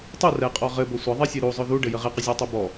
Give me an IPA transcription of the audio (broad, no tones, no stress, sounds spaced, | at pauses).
tˤ u r ɛ qʼ ɔ ʁ ɘ b ɵ sʷ ə ðˤ ɛ sʲ e ɾ u zˤ ɵ ð u ɖ ɘ j ə ʁ e q ə zʲ ɔ tˤ u b ɔ